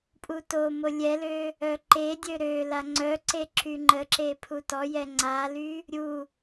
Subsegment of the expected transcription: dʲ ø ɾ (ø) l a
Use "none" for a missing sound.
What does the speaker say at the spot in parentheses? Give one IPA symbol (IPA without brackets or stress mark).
ø